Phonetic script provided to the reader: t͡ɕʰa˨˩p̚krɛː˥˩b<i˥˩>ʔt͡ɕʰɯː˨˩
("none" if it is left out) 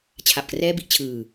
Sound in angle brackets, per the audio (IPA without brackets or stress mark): i˦˥